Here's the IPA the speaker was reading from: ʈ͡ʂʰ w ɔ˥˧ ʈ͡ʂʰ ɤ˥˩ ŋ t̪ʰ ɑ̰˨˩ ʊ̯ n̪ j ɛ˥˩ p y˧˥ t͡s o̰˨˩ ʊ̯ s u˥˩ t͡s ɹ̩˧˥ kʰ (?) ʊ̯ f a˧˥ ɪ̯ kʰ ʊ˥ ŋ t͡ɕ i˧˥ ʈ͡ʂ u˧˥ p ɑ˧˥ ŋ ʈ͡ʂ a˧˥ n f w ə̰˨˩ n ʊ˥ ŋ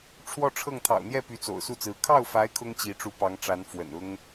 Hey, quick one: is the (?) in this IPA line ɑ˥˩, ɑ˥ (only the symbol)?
ɑ˥˩